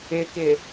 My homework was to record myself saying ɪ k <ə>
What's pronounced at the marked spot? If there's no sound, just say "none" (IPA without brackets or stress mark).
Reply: ɪ